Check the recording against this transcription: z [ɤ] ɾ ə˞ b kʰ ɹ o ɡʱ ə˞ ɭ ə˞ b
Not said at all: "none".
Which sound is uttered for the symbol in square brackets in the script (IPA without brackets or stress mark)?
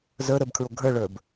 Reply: ə˞